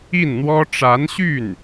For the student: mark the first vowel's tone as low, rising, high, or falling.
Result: falling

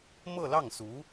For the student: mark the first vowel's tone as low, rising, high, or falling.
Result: falling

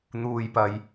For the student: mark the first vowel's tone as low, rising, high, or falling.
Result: low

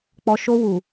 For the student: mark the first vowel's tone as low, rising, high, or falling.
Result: low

